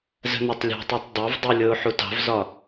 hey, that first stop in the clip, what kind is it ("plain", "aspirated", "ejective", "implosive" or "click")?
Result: plain